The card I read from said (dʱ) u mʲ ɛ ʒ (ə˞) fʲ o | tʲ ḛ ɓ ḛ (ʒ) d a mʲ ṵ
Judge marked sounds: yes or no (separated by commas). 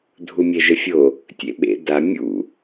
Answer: yes, no, no